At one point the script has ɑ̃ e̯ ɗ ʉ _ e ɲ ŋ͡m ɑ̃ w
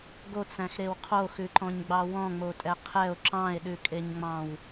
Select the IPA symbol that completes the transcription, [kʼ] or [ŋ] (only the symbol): kʼ